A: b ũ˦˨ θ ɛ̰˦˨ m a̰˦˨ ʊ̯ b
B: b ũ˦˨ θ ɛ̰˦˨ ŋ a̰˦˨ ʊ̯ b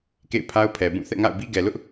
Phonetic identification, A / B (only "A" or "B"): B